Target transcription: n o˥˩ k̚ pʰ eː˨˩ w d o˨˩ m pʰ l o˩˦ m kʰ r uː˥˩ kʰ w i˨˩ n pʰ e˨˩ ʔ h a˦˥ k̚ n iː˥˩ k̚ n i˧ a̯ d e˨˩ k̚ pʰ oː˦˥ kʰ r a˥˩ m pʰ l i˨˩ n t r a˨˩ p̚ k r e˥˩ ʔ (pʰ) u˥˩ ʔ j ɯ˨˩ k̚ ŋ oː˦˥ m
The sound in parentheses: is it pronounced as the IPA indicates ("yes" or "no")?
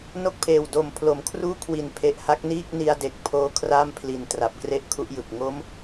no